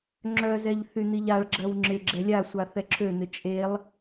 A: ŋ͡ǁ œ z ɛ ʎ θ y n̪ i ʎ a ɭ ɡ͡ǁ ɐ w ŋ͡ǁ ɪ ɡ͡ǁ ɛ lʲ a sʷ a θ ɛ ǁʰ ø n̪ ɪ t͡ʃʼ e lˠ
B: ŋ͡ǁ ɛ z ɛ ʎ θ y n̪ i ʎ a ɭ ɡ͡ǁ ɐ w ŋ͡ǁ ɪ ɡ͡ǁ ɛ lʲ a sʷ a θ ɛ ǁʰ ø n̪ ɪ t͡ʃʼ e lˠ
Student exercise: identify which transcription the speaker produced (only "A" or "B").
A